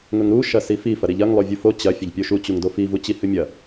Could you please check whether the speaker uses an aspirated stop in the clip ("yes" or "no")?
no